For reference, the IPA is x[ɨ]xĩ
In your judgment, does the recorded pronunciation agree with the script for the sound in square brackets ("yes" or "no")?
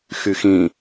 no